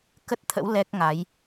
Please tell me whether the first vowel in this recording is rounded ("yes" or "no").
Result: no